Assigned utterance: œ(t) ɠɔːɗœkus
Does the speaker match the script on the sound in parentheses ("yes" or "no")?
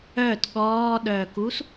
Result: yes